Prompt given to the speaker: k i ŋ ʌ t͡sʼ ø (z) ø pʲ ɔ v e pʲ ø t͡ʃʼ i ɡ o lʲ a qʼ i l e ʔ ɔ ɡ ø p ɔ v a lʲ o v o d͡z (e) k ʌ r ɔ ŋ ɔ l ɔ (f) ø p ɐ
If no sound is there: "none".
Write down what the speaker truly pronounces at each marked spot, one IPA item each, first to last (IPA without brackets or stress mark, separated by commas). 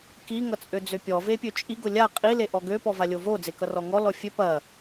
d͡z, e, fʲ